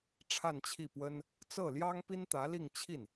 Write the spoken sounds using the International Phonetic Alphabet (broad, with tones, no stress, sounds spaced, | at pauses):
ʈ͡ʂʰ a˥˧ n t͡ɕʰ i˥˩ p w ə˥ n | t͡s ɤ˥˩ l j ɑ˥ ŋ p i˥ n t̪ ä˧˥ l i˥˧ ŋ t͡ɕʰ i˥˩ n